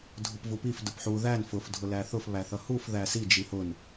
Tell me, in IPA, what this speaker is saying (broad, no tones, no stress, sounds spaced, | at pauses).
dʱ ʊ p v u p i f d ʊ p ħ u ð æ n f ʊ f dʱ ʊ l æ θ ʊ f β æ θ ʌ h u f ð æ s i d͡ʒ i h ʊ n